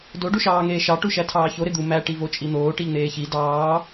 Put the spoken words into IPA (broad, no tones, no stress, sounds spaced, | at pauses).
d o ɖ u ʃ ɑː ŋ eː ʃ ɑ ʈ u ʃ æ tʰ ɑː ç o ɾ e d̪ u m æ ʈ i v o t͡ʃʼ i n̪ oː ʈ i ʎ n̪ eː ç i d ɑː